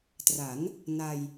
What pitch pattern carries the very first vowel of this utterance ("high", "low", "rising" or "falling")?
rising